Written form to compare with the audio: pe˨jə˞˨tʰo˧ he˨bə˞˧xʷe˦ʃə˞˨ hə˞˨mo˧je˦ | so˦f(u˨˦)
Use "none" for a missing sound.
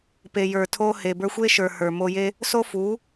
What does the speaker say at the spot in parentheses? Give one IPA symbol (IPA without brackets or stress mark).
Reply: u˨˦